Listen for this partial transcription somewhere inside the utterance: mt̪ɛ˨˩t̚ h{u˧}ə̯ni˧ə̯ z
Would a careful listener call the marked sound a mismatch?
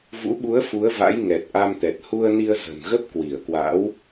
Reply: no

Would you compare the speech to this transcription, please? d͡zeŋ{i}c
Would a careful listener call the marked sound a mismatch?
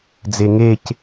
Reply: yes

